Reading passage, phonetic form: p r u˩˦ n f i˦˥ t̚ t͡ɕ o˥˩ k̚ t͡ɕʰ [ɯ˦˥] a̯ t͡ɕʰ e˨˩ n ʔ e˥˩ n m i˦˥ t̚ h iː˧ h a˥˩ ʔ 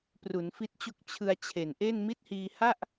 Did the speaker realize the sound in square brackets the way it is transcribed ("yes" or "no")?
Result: no